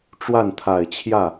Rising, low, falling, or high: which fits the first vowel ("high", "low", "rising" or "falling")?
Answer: falling